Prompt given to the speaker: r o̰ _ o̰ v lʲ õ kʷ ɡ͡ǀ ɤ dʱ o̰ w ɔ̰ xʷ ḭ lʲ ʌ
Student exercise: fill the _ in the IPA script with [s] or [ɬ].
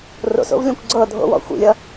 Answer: s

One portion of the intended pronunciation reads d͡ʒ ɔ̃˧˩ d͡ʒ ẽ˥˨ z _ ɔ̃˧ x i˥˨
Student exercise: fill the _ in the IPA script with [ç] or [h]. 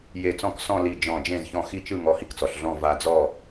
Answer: ç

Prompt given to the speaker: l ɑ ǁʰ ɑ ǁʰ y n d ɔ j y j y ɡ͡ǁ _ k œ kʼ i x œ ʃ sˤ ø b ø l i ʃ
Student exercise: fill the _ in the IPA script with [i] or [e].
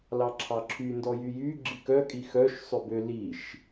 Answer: i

